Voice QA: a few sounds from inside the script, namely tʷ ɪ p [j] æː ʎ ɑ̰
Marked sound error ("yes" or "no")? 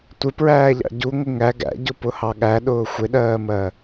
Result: yes